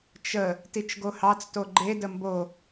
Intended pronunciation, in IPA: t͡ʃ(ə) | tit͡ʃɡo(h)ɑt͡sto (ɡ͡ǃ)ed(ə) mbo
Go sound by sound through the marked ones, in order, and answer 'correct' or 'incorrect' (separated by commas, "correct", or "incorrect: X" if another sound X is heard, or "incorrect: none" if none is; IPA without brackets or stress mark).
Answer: correct, correct, correct, correct